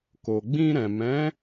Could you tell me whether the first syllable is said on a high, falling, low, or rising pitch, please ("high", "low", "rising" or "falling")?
low